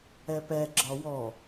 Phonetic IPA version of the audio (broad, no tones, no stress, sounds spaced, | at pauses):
ɛ p ɛ ɡ͡ǁ ɒ w ɔ